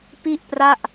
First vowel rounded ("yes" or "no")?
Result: no